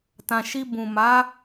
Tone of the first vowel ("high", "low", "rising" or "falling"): low